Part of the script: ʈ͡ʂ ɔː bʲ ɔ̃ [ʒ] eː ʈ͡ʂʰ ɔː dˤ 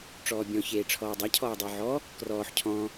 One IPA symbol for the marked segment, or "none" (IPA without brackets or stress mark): ç